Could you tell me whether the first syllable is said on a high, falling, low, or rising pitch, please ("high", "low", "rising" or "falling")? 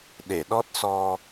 low